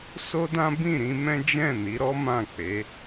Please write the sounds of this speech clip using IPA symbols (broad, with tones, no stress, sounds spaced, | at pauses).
s o˦ d ã˦ b ĩ˦˨ ɾ ĩ˧ m ɛ̃˦ d͡ʒ ɛ̃˦˨ n i˨˦ ɾ ɔ˦ m ã˦˨ k͡p e˨˦